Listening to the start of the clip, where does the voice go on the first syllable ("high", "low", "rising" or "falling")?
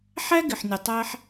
high